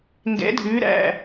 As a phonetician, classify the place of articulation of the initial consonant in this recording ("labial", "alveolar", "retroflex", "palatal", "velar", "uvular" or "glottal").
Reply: velar